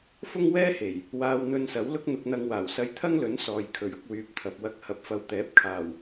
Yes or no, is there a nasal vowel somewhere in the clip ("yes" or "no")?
no